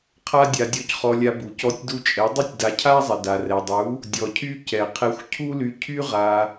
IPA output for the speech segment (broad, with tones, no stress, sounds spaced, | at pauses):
qʰ a˦ dʲ a˧ dʲ ɔ˧ c χ ɔ˧ lʲ a˧ b u˨ c ɔ˧ tʲ d u˧ t͡ʃʼ ɛ˨˦ dˤ y˦ tʲ d a˧ cʰ a˦ zˤ ɛ˨ d a˨ r ɛ˨ dˤ u˨˦ | dʲ ɔ˧ cʰ y˦ c ɛ˨ qʰ ɛ˧ xʷ cʰ u˦ l y˧ cʰ y˦ ʁ a˧